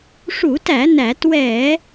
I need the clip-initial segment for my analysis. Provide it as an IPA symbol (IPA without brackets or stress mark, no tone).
ʂ